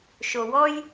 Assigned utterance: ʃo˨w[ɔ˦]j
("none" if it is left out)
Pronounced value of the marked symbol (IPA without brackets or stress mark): ɔ˦